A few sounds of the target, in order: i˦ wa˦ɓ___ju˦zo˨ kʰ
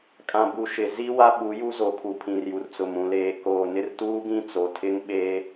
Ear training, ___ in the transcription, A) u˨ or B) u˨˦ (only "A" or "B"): B